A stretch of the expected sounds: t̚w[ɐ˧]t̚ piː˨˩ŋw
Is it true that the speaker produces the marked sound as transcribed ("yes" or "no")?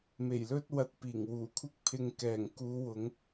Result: yes